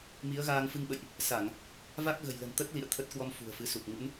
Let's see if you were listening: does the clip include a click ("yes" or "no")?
no